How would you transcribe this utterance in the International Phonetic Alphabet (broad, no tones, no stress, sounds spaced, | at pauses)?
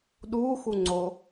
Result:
ɗ u x u ŋ͡ǀ o